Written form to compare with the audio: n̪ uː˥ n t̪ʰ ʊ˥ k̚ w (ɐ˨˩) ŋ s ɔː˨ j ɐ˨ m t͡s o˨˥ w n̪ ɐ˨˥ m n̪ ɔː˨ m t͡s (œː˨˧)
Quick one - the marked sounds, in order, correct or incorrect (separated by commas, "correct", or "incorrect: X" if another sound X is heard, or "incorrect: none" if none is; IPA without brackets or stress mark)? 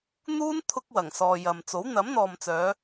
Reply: correct, correct